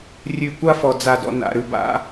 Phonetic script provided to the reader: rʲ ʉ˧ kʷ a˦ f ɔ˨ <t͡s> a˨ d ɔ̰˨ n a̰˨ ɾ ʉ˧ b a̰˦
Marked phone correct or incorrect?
incorrect